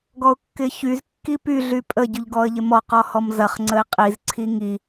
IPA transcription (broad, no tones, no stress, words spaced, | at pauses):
ɡɔʊ̯kːɪçyz kːipy ɮypʼə ɟyʎɡɔə̯ʎɪmɔ qɔhɔmzɐχ ŋ͡ǀəɪ̯qʼiz ǀʰiŋi